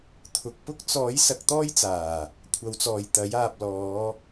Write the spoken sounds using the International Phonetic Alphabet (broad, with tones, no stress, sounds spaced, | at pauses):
t̪ʰ ʊ˨ k̚ p ʊ˥ k̚ t͡s ɔː˨˥ j s ɐ˨˥ k̚ t̪ ɔː˥ j t͡s aː˨˩ | kʷʰ ɐ˨˧ w t͡s ɔː˨ j t̪ ɐ˨˥ j aː˨ p̚ l ɔː˨˧